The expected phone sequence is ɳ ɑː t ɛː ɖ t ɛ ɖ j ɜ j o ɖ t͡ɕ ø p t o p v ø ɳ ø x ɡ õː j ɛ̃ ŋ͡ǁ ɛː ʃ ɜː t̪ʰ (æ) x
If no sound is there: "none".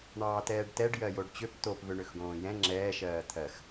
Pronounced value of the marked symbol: ɜ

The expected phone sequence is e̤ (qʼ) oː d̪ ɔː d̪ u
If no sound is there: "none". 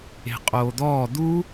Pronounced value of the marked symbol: qʼ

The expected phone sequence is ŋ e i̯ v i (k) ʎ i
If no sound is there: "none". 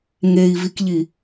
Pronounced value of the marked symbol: k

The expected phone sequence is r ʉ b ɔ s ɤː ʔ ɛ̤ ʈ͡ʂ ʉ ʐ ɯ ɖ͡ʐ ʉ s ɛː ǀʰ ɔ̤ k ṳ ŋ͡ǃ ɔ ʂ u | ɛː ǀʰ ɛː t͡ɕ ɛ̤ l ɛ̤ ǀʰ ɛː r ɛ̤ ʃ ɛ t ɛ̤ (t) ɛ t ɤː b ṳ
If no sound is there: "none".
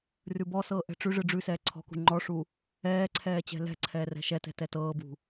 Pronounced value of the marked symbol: t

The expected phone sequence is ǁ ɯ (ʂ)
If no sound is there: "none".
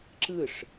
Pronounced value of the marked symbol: ʂ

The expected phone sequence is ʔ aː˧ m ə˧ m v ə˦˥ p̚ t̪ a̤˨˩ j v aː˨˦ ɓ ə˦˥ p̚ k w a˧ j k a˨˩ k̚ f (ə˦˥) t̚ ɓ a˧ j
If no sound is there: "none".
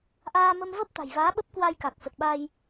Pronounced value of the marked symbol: ə˨˩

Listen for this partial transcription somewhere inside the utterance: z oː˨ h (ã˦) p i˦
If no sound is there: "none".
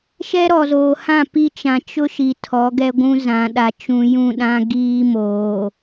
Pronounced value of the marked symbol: ã˦˨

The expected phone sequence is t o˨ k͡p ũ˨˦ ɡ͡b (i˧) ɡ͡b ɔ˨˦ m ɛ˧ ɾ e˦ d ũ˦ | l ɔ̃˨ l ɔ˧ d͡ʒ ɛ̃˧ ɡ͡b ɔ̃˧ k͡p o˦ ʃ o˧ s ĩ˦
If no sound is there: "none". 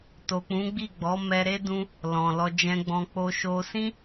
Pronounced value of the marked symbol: i˦˨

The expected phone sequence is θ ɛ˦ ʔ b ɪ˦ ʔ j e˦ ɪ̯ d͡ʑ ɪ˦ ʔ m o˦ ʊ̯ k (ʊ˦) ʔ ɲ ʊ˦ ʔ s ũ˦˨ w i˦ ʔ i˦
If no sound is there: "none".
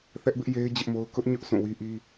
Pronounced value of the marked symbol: ʊ˦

